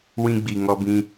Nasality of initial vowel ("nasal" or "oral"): nasal